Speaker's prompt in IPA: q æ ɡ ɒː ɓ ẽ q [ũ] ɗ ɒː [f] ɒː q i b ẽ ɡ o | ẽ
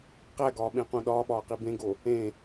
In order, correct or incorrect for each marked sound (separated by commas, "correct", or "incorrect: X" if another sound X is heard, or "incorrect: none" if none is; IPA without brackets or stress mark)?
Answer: correct, incorrect: ɓ